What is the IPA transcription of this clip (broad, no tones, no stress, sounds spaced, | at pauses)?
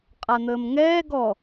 qʼ a n̪ əː m ŋ ɛː ɡ ɔ